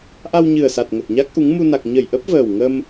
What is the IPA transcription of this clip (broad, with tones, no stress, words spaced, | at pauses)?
ʔa˧wɲɨ˨˩ə̯sa˨˩t̚ ŋə˨˩t̚ɲa˦˥k̚ʔu˨˦ŋ mu˧na˨˩k̚ ɲə˧˩jʔə˦˥p̚ vəː˨˩wŋə˧m